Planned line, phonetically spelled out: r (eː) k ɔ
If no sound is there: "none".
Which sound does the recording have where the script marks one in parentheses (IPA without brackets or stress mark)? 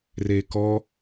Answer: eː